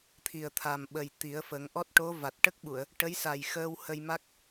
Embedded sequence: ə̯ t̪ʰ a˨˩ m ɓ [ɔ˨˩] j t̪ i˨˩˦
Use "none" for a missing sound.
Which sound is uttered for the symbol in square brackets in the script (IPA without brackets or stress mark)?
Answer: ə˨˩